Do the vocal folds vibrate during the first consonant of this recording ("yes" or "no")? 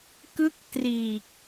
no